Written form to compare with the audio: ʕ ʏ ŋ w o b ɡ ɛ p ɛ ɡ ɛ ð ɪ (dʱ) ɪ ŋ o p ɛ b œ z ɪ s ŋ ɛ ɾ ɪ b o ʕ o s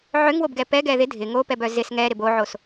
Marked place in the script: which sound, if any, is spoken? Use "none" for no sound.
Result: dʱ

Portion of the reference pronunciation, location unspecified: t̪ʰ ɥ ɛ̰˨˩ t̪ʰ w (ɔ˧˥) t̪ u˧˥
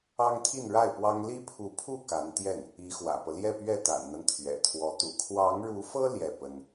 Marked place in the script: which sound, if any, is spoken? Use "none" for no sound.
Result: ɔ˧˥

